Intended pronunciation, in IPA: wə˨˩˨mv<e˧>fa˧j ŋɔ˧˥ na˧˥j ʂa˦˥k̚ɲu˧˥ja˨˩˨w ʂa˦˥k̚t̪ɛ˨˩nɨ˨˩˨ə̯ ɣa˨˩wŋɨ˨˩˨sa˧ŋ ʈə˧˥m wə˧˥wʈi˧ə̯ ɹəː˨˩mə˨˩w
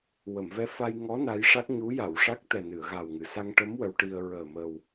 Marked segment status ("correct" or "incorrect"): incorrect